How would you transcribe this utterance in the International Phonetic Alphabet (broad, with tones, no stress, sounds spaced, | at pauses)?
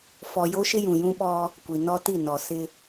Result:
f ɔ˨ j o˦ ʃ ɪ˦ j ũ˨ j ũ˦ ɓ ɔ˦ | kʷ i˨ n ɔ˦ t i˦˨ n ɔ˨ s ɪ˦